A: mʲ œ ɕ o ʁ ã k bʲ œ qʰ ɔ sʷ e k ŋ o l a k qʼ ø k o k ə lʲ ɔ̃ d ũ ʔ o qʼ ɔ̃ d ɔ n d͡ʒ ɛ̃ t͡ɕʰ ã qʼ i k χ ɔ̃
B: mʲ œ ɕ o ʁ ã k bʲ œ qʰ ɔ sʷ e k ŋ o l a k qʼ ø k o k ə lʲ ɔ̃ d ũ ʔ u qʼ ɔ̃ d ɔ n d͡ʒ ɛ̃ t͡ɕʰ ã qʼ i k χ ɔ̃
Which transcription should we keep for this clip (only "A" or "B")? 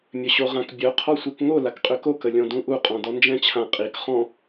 B